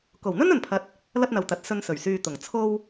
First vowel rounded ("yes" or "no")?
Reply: yes